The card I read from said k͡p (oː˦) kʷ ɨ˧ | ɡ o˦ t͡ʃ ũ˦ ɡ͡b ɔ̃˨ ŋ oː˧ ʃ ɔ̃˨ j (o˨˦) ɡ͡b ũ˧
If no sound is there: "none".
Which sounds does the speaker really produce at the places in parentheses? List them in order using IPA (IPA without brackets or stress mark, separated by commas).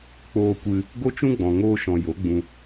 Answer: oː˧, o˨˦